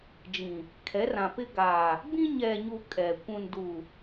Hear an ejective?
yes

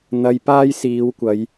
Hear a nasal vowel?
no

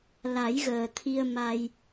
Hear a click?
no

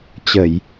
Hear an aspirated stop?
no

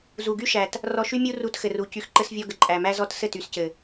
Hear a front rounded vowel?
yes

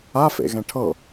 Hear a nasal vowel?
yes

